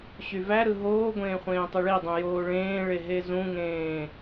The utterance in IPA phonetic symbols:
ɕ y v æ ɾ ɯ ɦ oː ɡʷ ẽː χʷ ẽː tˤ ɯ ɭ i dˤ ũ j oː ɭ ẽː ɭ e ɦ e z ũ ŋ ẽː

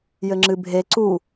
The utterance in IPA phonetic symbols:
j ɘ ŋ͡ǁ ɨ bʱ e ǀ u

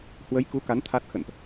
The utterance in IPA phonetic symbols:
h w ə˨˦ j k u˨˦ k a˨˦ n t̪ʰ a˦˥ t̚ x ə̰˧˨ n ʔ

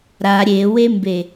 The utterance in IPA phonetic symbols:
ɾ a ɾʲ e w e m b e

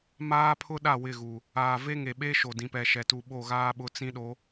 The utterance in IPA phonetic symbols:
m aː˦ pʰ ʊ˦ ɗ a˦˨ w ɪ˦˨ ɣ u˨ | aː˨ v e˦ ŋ e˨ ɓ e˦ ʃ o˨ d ĩ˨ p ɛ˨ ʃ ɛ˨ t u˨ ɓ o˦˨ ɣ aː˦ ɓ ʊ˨˦ t͡s ĩ˦ ɗ o˨˦

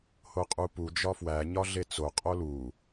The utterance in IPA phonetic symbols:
h o qʼ u p u d͡ʒ ɒ f w æ ɲ ɒ ɮ e t͡s o qʼ o l u

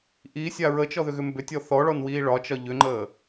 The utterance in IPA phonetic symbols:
ʔ i sʲ a ɹ ə t͡ʃ ɔ ð ʏ ɣ ʏ m b ʏ tʲ ɔ θ ɔ ɭ ɔ n w iː ɭ ɒ t͡ʃ ɒ ʎ ʏ ŋ͡ǃ əː

